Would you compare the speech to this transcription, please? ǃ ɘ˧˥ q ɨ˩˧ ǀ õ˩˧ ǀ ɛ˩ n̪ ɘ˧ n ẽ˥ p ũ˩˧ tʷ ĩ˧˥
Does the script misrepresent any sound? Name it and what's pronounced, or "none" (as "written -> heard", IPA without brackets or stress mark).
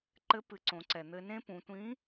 q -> p